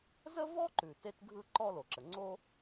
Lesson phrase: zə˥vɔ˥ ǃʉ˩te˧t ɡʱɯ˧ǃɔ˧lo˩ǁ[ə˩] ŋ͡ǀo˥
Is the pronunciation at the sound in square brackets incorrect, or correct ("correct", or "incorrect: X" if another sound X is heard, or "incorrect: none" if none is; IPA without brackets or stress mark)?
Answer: correct